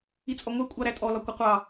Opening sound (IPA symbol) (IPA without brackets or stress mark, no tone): i